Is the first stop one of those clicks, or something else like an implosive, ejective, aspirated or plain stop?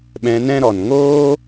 implosive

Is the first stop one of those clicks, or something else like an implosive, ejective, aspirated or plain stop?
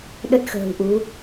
implosive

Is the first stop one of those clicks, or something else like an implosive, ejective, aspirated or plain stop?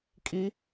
ejective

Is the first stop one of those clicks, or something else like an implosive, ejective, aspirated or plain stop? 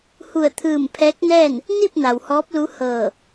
aspirated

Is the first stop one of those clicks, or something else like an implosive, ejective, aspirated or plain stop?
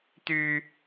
plain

